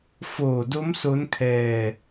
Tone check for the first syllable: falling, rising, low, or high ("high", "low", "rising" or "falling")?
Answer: low